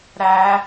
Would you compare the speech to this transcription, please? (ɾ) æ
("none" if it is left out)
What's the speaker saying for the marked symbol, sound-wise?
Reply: ɾ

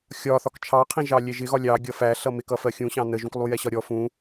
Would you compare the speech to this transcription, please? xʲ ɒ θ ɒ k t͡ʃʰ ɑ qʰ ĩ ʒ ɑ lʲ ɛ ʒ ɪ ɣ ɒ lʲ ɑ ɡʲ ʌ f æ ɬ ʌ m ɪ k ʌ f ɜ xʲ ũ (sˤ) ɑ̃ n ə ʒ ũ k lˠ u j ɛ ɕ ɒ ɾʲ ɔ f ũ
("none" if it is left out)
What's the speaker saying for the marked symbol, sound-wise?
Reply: ɕ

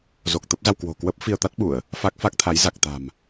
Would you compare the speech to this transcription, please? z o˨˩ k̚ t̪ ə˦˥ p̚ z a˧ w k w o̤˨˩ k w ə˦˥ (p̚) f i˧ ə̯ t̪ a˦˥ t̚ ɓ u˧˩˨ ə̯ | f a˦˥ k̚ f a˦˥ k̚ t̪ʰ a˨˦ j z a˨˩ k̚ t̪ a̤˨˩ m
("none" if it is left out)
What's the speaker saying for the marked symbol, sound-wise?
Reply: p̚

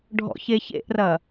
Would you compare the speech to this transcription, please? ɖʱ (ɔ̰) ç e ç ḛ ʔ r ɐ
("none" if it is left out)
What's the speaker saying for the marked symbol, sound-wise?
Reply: ɔ̰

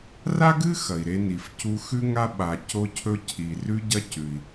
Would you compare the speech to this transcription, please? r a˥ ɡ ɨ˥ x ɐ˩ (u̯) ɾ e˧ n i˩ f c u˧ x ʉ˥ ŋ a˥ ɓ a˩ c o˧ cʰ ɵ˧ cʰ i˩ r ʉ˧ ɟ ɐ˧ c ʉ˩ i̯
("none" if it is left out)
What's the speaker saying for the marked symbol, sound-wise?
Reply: i̯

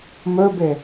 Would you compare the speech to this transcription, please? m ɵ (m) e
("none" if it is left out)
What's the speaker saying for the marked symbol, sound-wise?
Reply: b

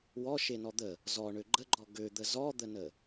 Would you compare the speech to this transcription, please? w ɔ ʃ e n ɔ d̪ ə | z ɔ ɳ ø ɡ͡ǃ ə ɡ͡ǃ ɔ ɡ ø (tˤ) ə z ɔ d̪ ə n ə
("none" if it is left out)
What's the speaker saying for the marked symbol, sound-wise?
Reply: d̪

